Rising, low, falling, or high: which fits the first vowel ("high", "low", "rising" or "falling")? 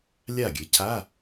falling